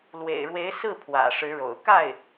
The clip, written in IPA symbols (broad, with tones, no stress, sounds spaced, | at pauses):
l w ḛ˨˩ ɪ̯ ɻ w e˧˥ ɪ̯ s ɹ̩˥˩ pʰ w ä̰˨˩ ʂ ɻ̩˧˥ ɻ o̰˨˩ ʊ̯ k a˥˩ ɪ̯